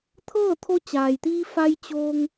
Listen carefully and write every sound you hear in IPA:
t̪ʰ ɤː˥˨ t̪ʰ o˧ t͡ɕ aː˩ j t̪ iː˧ f a˧ j t͡ɕ oː˧ ŋ

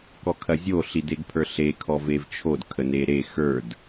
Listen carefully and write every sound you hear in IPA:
k ɔ kʰ ɐ zʲ o ɬ i d e ɡ pʰ ə˞ ɬ e kʰ ɔ v e v t͡ʃʰ o d kʰ ə n e ɾ e x ə˞ d

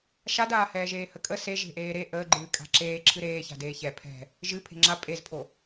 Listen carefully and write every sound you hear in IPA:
ʃ a d aː h ɛː ʒ eː h ə kʼ ə s e ʒ e̤ ʔ eː ɾ e ʔ əː ɡ͡ǃ ɨː kʼ a̤ ǁ eː ǁʰ ɨ ɾ eː ç a̤ d eː ç ɛ pʰ ɛ̤ | ʒ ɨ pʰ e̤ ŋ͡ǁ a pʼ e z pʰ o

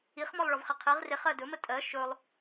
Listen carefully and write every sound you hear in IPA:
i χ m ɔ lˠ ɭ ɔ v χ i qʰ i ʁ r e χ ɜ d ɵ m ə tʼ ɜ ʃ ɵ lˠ

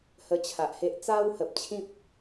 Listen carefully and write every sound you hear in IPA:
h ə˧ t͡ɕʰ a˨ ʔ h e˦ ʔ t͡s a˦ w h ə˨ p̚ t͡ɕʰ ĩ˦ p̚

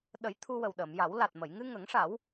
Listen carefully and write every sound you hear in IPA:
ɗ ə˨˩˦ j t̪ʰ u˧ w ə˨˩ w ɗ əː˨˩˨ m j a˨˩˦ w l a˨˩ t̚ m ə˨˩˨ j ŋ ɨ˧ ŋ ə˨˩˦ ŋ ʂ a˨˩˦ w

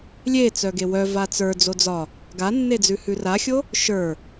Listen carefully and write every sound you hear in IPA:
lʲ e t͡s œ ɡ e w œ v a t͡s ə˞ d͡z o d͡z ɒ | ɡ a nː e d͡z ʉ h ʉ r a xʲ o | ʃ ə˞

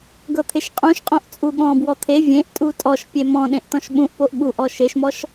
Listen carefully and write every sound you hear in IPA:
ɡ ɤ t̪ʰ e ʃ qʼ ũ ʃ qʼ õ ʔ t͡sʼ u ɠ ɔ̃ b w ɔ t̪ʰ e vʲ ẽ ʔ tʼ u tʼ ɔ ʃ pʲ e m ɔ̃ ɗ ẽ ʔ t ɔ̃ ʃ ɓ ũ ʔ p o ʔ ɠ u ʔ ɔ ʃ e ʃ m ɔ ʃ

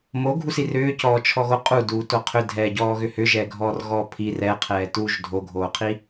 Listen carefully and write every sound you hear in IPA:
m o ɡʱ u s i r ʏː c ɔː t͡ʃʰ ɔ ɣ o qʼ u d uː t o qʰ ʏ dʱ ɛː ɟ ɔː ɣ ʏ h ʏ ʒ ɛː ɡʱ ɔː r ɣ ɔː pʰ i r ɛ qʰ ɛː t uː ʒ dʱ o ɡʱ oː qʰ i

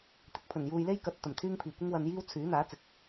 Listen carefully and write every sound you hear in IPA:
t̪ ɪ˨˥ k̚ pʰ ɵ˨˩ n j uː˧ j l e˥ j k ɐ˨ t̚ t̪ ɐ˨˩ m t̪ʰ yː˥ ŋ pʰ iː˨˩ kʷ ɪ˥ ŋ w ɐ˧ n j iː˥ w t͡sʰ yː˨˥ n̪ aː˨˥ t͡s ɪ˨ k̚

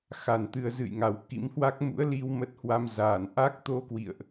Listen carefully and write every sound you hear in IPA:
x a˨˩ n t̪ ɨ˧ ə̯ z ɨ̰˧˨ j ŋ a˨˩ w k ḭ˧˥ m h w a˦˥ k̚ m ṵ˧˥ ə̯ l i˧ w m ə˦˥ t̚ h w a˧ m z aː˧˩ n ʔ a˦˥ k̚ t̪ o˧ k w ḭ˧˨ ə̯ ʔ

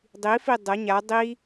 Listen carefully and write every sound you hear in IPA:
dˤ i f i dˤ ɤ ɲ a dˤ i

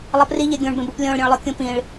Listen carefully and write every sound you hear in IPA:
lˠ ʌ p r i ʎ e ɡʲ õ ɳ b ẽ b u p lʲ õ ɭ ɾʲ õ ɭ lˠ o kʲ ũ p ĩ ɭ

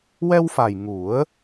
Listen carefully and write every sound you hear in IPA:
w ɛ˧ w f a˨˩ j ŋ u˨˩˦ ə̯

